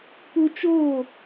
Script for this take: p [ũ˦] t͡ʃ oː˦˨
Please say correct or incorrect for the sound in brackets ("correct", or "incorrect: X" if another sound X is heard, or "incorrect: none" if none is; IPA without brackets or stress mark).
incorrect: u˦